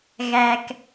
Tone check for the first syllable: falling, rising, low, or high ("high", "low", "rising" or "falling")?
low